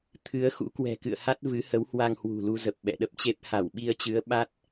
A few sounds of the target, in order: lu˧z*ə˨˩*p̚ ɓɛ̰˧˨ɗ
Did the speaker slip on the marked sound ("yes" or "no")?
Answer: no